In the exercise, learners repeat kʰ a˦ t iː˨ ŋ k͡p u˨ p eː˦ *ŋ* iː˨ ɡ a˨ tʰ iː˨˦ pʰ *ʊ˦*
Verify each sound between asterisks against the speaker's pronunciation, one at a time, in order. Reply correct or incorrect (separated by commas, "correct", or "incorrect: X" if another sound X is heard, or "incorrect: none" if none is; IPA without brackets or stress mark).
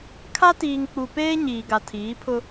incorrect: ɲ, correct